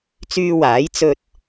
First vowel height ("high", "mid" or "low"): high